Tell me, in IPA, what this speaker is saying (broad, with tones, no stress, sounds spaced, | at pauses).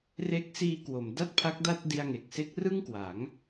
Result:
r e˦˥ k̚ s iː˧ k w o˩˦ m d a˥˩ t̚ pʰ a˦˥ k̚ d a˥˩ t̚ d i˧ a̯ ŋ e˨˩ k̚ s e˦˥ k̚ r ɯ˥˩ ŋ k w a˩˦ ŋ